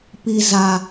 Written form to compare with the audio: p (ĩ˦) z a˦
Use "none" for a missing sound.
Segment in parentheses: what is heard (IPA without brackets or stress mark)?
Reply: i˦